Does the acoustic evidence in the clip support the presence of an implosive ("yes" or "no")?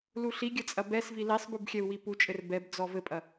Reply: no